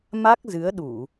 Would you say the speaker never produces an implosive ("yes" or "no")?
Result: no